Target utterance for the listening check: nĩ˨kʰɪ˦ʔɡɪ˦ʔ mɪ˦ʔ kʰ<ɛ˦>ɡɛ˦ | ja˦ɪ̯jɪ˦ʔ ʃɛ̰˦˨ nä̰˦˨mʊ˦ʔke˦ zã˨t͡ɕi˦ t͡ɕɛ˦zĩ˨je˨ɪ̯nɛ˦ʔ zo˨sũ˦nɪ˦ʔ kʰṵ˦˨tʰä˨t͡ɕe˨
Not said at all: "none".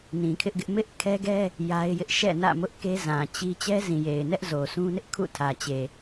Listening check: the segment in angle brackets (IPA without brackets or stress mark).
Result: ɛ˦